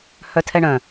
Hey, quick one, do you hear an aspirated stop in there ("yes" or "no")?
yes